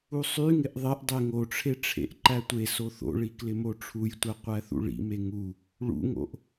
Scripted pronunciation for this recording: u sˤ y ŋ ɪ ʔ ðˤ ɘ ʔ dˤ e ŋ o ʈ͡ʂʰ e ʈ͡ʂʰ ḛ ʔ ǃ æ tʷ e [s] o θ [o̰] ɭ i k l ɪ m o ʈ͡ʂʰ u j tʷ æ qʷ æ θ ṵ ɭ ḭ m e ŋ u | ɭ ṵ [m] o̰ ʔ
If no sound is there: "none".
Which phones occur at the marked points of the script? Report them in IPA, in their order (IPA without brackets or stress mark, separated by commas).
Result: s, o̰, ŋ